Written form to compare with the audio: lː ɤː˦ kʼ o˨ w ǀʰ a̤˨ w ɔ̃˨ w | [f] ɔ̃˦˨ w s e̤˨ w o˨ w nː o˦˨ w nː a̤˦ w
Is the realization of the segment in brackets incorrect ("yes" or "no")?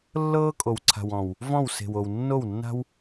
yes